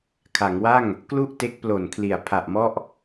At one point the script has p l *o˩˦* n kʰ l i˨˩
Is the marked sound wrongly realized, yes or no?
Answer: yes